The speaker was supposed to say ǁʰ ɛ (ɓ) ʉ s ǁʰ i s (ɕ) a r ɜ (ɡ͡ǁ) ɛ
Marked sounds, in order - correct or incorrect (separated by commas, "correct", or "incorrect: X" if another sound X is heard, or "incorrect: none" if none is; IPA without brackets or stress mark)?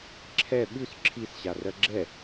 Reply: correct, correct, correct